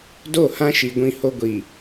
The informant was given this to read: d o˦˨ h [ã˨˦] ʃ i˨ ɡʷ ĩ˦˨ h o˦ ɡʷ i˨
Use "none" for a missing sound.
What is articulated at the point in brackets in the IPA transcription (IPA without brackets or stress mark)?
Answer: ã˦